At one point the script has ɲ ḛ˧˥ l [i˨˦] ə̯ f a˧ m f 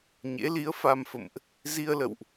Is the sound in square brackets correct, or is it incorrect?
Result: correct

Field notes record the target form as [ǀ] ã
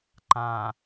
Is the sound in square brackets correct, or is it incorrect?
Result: incorrect: ǃ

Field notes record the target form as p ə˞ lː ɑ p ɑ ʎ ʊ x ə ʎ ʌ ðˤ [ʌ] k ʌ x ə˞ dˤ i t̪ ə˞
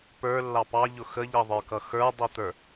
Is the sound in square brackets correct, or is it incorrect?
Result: incorrect: ə˞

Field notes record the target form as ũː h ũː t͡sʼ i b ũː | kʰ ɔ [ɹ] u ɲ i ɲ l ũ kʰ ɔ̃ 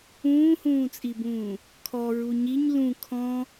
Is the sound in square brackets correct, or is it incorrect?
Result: correct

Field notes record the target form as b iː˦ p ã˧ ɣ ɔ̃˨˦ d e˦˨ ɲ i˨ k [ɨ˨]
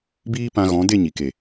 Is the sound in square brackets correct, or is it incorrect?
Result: incorrect: e˨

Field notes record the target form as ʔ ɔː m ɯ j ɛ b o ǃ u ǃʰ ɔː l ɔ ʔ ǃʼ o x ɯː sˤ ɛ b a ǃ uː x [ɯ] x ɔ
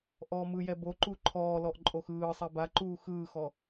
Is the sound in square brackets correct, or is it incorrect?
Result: incorrect: ɯː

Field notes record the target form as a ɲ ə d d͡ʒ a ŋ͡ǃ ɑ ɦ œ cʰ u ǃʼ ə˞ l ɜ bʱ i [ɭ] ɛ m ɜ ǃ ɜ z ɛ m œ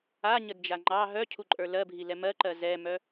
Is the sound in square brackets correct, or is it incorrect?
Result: incorrect: l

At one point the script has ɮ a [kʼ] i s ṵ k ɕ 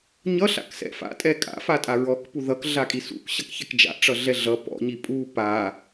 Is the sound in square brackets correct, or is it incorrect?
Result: correct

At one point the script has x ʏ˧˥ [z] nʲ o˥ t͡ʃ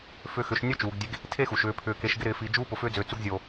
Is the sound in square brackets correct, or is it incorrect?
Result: incorrect: ʃ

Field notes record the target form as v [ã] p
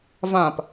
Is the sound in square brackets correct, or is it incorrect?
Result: correct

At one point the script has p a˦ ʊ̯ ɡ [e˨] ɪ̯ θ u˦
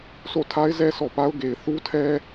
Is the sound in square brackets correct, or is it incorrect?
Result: correct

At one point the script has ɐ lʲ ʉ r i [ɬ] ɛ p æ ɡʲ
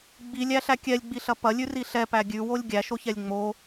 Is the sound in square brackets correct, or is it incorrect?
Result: correct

